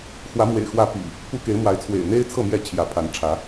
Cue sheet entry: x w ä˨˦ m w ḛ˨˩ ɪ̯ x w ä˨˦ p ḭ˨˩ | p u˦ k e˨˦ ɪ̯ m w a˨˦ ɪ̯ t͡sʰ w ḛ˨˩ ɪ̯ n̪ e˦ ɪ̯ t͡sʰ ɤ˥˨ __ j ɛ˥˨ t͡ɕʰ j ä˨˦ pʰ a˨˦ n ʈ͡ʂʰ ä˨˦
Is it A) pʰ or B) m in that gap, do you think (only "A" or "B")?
B